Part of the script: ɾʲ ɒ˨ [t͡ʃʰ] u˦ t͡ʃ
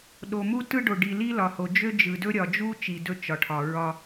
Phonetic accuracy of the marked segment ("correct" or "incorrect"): incorrect